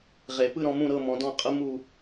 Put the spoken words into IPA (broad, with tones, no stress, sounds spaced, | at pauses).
ʁ e˨˩˦ p ɯ˥˧ ɾ ɔ̃˥˧ m ũ˥˧ ɾ ɤ˥˧ m ɔ̃˨˥ d ɔ̃˥˧ qʼ ɯ˥ m u˥˧